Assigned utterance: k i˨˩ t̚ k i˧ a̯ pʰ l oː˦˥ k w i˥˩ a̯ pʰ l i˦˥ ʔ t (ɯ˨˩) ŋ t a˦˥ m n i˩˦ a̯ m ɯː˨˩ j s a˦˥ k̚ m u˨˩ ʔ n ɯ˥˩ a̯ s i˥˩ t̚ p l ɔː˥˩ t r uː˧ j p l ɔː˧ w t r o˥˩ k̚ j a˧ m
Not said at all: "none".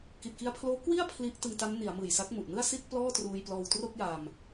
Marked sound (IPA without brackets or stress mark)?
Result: ɯ˧